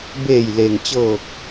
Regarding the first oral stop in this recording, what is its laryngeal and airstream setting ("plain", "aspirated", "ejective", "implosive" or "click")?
plain